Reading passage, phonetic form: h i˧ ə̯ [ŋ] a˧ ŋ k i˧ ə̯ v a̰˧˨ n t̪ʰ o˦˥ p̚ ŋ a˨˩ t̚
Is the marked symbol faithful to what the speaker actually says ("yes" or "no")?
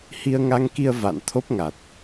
yes